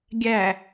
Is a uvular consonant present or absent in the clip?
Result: absent